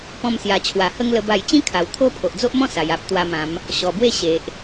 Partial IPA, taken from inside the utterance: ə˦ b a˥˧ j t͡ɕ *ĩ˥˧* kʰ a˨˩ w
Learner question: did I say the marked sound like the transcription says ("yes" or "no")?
no